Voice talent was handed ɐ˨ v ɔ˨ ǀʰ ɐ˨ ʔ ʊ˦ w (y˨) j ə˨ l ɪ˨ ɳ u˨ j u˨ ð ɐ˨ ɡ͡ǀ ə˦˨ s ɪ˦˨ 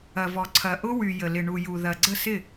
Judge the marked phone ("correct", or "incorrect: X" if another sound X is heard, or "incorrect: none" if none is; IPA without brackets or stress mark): correct